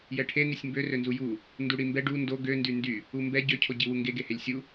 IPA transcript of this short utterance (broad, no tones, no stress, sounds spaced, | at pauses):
j ɛ ʈʰ e n i sʲ m b ø r ø n z u j u | n d u ɽ i m b ɛ ɖ u n d o ɡ ø n d y n d y | u m b ɛ ɟ ø cʰ o ɟ i w u ŋ ɡ e ɡ e h e lʲ sʲ u